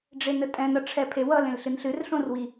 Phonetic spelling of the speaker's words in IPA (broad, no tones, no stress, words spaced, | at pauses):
ɖ͡ʐenətʼɛ̃ nʌʈ͡ʂʰɛpʰe wʌl ẽlɬɨnɬɨr ɬõrwi